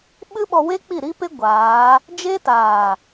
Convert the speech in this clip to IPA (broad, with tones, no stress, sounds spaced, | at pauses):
ɓ ɨ˦ ɓ ɔ˧ w e˦ k͡p i˦˨ ɾ i˦ p e˦ ɡʷ aː˨˦ | d͡ʒ e˦ t aː˨